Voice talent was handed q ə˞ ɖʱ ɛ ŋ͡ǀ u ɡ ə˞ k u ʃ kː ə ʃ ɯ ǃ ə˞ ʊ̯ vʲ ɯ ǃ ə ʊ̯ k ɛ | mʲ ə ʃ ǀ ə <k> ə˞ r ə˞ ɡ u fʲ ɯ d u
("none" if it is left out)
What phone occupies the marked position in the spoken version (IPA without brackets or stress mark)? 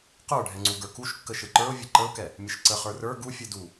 χ